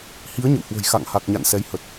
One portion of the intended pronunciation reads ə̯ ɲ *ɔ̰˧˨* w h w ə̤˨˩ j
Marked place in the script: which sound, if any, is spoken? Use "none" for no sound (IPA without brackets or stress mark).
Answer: ə̰˧˨